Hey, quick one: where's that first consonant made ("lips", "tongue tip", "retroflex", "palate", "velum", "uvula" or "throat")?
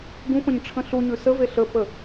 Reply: velum